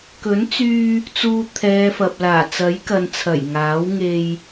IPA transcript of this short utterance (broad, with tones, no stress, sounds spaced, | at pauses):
k ɵ˨˥ n t͡s yː˧ | t͡s uː˧ t̪ʰ ɛː˨˧ f ɐ˨ p̚ l aː˨˩ t͡s ɐ˨˥ j k ɐ˨ n t͡sʰ ɐ˨˩ j ŋ aː˨˥ w ŋ e˧ j